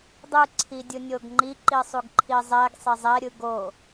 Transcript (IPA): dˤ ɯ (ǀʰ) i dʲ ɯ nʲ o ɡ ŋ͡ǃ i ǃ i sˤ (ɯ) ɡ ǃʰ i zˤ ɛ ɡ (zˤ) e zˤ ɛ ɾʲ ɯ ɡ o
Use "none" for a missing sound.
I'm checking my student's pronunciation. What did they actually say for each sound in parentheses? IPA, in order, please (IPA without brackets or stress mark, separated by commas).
ǀʰ, u, sˤ